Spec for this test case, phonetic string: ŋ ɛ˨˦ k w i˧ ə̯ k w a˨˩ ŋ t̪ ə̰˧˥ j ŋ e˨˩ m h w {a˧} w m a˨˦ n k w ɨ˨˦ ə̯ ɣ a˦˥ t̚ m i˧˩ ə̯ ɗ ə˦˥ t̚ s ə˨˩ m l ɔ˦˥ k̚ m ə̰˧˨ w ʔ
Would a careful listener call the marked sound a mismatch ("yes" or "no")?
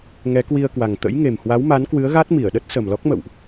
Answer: yes